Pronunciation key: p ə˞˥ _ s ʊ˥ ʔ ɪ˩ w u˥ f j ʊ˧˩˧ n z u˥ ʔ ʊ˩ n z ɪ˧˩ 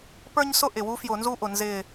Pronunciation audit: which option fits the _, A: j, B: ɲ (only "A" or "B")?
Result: B